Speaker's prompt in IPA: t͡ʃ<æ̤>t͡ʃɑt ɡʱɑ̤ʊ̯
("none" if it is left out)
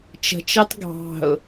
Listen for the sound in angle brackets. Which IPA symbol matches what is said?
ə̤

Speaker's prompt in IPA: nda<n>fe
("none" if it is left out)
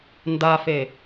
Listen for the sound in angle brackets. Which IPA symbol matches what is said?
none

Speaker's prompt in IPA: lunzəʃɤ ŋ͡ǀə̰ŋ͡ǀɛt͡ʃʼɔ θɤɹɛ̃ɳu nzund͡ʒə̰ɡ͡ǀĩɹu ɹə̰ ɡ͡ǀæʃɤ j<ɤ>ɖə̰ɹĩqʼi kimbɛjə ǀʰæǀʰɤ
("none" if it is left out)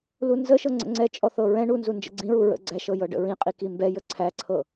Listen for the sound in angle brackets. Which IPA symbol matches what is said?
ɤ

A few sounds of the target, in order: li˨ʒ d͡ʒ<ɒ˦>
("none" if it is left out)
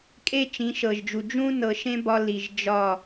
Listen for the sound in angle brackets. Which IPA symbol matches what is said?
ɒ˦˨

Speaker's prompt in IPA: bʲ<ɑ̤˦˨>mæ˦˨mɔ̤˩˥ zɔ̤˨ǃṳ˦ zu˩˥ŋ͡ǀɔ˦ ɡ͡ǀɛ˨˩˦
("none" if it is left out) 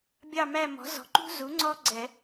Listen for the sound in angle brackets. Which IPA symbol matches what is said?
ɑ˦˨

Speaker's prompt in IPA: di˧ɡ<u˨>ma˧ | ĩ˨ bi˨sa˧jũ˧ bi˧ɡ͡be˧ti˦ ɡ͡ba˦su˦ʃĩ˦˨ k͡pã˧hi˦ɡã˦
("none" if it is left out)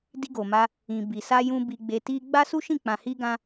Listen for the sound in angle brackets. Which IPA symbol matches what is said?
o˨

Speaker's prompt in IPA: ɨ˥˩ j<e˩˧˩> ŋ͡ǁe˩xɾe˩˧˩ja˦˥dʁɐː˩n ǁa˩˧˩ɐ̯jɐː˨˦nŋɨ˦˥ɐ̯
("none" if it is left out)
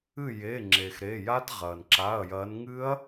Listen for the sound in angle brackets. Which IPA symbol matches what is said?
e˩˧˩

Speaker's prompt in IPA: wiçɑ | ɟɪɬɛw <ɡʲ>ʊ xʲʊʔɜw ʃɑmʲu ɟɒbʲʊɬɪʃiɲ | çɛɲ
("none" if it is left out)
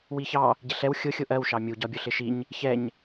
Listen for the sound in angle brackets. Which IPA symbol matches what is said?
xʲ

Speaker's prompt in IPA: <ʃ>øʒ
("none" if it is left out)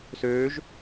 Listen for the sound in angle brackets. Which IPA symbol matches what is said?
s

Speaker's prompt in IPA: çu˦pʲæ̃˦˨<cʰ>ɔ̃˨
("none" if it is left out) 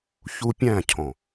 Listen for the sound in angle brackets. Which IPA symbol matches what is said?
cʰ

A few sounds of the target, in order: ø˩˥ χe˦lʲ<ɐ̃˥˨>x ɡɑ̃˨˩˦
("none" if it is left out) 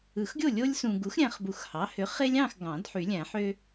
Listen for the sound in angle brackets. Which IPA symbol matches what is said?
ɑ̃˥˨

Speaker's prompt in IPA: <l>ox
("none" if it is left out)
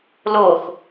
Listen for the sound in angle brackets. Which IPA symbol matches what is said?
l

